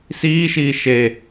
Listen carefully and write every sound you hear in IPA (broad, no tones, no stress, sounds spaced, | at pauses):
s iː ʃ iː ʃ e